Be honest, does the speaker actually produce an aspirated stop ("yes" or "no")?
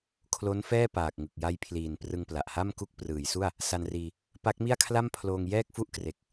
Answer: yes